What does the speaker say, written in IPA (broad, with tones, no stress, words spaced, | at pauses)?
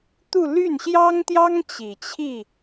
t̪u˥˧ ly˥˩nɕjɑ˥ŋt̪jɑ˥ŋ t͡ɕi˨˩t͡ɕʰi˥˩